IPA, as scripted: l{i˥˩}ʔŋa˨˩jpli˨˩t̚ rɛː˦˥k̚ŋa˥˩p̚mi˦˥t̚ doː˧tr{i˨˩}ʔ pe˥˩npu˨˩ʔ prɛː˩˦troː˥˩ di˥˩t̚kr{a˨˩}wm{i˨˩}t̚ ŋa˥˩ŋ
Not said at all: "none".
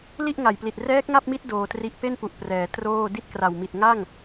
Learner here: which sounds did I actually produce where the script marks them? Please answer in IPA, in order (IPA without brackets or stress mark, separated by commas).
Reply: i˥˩, i˦˥, a˨˩, i˨˩